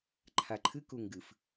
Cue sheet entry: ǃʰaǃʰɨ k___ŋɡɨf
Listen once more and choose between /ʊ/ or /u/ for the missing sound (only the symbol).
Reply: u